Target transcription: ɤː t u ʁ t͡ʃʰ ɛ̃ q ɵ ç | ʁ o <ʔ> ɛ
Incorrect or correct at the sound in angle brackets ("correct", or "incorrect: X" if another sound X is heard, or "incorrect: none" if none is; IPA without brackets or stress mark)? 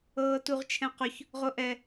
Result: correct